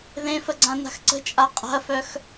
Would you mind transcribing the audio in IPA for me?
ð ẽ f ə ɡ͡ǀ ã n a̤ x ǀ ə̤ t͡ʃʼ a qʼ a̤ ɐ̯ f œ x

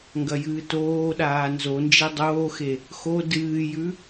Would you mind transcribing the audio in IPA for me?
ŋ ɡ ɐ j ɨː t oː ɗ aː n z o n d͡ʒ e dˤ oː x e | x o d ɨː j ʉ

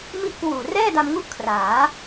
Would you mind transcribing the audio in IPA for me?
m i˦˥ ʔ k w uː˨˩ r ɛː˥˩ d a˧ m ŋ u˥˩ ʔ kʰ r aː˩˦

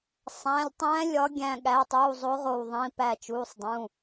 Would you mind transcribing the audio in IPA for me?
sˤ æ̃˩˧˩ lʲ tˤ æ̃ː˧˥ lʲ ɒ˧˥ ɡʲ æ̃˧˩ ɠ æ˩˧˩ tˤ uː˩˧˩ zˤ o˧˥ ʁ o˧˩ w ðˤ ĩ˩˧˩ p æ˧˩ t͡ʃ uː˩˧˩ sˤ dˤ ũ˩˧˩

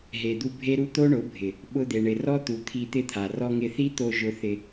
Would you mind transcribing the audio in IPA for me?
ɦ e˨ d̪ u˧ bʱ e˦ ɾ u˦ t̪ o˦ ɳ ʊ˨˦ bʱ ɪ˨ | ɓ ʊ˧ d̪ e˨ ɳ ɪ˨ r ɔ˦ t̪ u˨ t̪ʰ i˧ t̪ ɪ˦˨ t̪ʰ a˨ r ɔ˧ ŋ ɪ˧ θ i˦ t̪ o˧ ʒ ʊ˧ θ ɪ˧

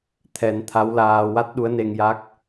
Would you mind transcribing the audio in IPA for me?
t̪ʰ ɛ˨˩˦ n t̪ʰ a˧˥ w l aː˧ w a˦˥ t̚ ɗ u˧˥ ə̯ n e˧ ŋ j a˦˥ k̚

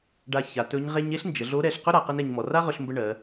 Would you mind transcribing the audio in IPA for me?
ɖ a˧ ç a˩˧ t ɵ˧˥ ɲ ʁ e˥ ɲ e˥ ɬ n d͡ʒ ə˩˧ ɮ o˧˥ ɾ ɛ˧ ɬ q ɵ˥ ɾ a˩˧ q ə˥ n ɛ˧ ɲ m ɔ˩˧ r a˥ ʁ ɵ˧ ɬ m b ə˧ ɳ ɜ˩˧

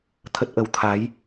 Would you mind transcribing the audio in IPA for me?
t̪ʰ ə˦˥ t̚ ʔ ə˨˦ w t̪ʰ a˨˦ j

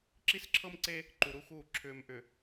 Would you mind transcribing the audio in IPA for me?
ǁ i˦ s ǁʰ ɤ˦ m ǀ e˦ | ǃ u˨ ɾ u˦ x uː˦˨ ǁʰ ʏː˨ m ʔ ʏ˨

